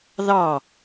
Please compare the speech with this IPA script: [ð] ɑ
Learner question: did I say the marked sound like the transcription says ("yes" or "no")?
yes